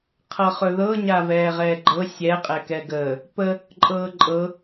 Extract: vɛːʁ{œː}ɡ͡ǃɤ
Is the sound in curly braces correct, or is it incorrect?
incorrect